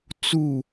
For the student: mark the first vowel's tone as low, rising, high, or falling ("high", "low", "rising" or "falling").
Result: falling